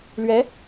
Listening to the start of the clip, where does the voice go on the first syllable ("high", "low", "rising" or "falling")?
rising